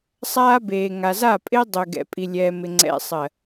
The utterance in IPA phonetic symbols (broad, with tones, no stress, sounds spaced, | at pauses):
sˤ aː˦ b eː˨ ŋ a˨ z a˦˨ pʼ ɪː˦ dˤ ʏː˨ ɡ ɛ̰˨ pʼ i˨ lʲ ɛː˨ m ɪ˨ ŋ͡ǀ ɛ̰˨ sˤ ɜ˨